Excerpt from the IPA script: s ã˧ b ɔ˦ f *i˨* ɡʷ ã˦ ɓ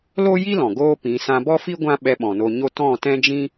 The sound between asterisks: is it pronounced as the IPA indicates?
no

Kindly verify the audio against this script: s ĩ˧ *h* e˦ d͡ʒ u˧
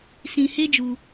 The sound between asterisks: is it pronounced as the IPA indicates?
yes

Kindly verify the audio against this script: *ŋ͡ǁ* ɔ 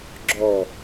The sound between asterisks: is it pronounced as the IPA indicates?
no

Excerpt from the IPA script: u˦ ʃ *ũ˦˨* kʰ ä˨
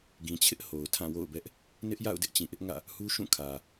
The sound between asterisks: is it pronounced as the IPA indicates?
yes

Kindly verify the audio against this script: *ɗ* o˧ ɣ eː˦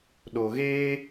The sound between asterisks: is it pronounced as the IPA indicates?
yes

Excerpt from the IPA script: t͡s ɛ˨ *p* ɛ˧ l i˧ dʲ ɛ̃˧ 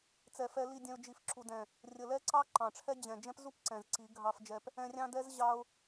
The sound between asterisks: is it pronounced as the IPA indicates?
no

